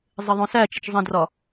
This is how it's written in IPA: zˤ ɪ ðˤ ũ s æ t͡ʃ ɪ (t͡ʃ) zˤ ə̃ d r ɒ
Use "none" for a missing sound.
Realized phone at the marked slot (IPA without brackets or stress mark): t͡ʃ